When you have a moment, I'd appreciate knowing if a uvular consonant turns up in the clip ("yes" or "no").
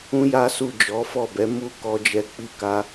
no